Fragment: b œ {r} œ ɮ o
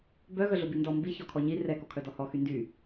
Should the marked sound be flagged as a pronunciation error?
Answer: yes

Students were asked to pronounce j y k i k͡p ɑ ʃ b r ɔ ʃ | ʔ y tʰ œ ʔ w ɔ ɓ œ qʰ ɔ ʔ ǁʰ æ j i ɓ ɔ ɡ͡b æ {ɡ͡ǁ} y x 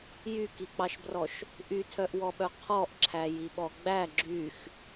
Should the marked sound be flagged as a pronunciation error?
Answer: no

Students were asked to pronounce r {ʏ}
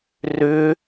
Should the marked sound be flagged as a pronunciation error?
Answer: no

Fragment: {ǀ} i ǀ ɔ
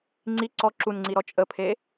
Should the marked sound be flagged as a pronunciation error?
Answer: yes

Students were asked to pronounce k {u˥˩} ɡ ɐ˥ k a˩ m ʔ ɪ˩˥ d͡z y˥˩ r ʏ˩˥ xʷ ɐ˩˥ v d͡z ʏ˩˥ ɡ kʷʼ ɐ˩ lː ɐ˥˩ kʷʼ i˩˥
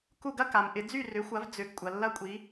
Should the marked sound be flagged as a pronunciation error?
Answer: no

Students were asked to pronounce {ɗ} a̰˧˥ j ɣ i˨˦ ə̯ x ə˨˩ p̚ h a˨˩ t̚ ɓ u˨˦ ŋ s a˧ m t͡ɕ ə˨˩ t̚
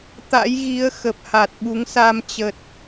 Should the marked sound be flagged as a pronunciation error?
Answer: yes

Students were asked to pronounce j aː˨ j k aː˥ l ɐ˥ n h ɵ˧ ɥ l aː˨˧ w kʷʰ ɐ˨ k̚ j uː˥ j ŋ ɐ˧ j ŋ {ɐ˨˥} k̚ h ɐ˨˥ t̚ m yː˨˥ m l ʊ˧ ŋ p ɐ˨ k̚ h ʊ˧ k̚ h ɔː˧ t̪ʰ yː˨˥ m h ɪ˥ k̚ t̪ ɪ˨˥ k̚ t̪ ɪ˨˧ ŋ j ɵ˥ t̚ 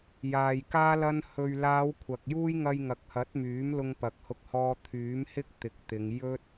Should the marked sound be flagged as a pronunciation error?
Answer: yes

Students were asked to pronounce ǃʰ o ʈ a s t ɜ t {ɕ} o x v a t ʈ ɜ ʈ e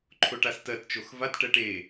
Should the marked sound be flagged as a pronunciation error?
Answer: yes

